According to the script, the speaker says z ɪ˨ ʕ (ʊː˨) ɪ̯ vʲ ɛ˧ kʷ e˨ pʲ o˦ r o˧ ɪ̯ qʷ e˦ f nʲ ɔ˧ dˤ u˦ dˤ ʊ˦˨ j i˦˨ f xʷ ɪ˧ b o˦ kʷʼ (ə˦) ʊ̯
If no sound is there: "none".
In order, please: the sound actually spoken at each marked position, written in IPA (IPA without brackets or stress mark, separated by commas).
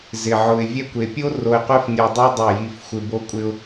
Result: ʊ˨, ɪ˦